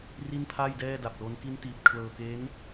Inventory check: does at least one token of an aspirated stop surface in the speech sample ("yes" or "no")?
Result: yes